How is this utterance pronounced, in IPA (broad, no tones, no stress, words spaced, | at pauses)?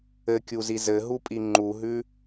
ɘkʲuzi zɘɦupʼi ŋ͡ǃuɦʉ